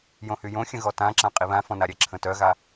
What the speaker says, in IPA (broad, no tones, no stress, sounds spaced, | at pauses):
j õ h y j õ xʲ ə̃ ɣ ɔ t ã ǁ ã qʼ i β ã f ɔ̃ n a ɾʲ ɛ ǁʰ ə̃ t œ ɣ a